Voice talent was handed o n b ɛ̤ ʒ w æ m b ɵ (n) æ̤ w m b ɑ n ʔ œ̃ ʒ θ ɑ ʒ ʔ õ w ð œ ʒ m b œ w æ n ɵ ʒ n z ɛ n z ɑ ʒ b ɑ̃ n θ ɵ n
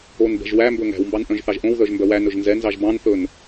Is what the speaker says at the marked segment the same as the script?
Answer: no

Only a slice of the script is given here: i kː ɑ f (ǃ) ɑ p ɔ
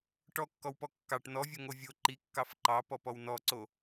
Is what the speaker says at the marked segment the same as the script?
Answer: yes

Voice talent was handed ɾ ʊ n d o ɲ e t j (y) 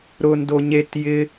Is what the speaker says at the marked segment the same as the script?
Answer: no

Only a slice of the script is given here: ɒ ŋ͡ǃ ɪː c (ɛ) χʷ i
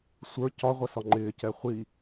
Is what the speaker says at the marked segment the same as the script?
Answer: yes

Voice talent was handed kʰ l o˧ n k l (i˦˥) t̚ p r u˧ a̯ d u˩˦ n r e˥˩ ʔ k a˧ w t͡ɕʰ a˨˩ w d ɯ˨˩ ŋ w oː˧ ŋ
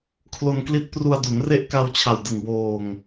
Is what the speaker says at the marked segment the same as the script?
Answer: yes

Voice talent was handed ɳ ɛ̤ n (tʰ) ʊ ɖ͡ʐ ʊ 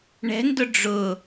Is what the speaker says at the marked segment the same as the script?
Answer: no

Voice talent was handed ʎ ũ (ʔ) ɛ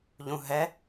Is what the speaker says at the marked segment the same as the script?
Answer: no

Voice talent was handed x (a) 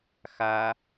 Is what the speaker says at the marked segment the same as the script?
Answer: yes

